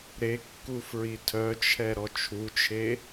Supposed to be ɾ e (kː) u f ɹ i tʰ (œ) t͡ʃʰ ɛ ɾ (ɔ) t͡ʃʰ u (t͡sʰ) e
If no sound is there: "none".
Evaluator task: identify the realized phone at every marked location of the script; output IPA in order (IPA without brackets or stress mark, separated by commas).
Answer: kː, œ, ɔ, t͡ʃʰ